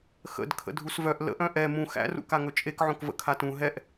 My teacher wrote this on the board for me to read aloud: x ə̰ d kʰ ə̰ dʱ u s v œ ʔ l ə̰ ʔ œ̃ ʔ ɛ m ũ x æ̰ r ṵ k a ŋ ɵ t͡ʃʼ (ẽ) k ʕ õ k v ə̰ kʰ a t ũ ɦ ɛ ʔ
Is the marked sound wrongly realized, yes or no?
yes